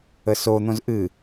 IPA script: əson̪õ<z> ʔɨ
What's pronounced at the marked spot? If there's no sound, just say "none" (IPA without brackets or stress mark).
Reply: z